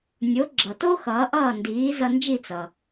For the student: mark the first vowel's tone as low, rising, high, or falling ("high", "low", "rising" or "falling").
rising